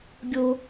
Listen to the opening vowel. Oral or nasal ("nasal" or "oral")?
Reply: oral